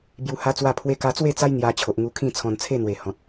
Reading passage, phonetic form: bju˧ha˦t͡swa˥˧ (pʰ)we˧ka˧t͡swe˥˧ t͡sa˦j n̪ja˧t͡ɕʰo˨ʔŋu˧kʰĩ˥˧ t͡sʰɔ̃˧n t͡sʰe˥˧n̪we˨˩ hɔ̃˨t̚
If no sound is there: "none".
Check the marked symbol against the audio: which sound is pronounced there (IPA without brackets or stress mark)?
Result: pʰ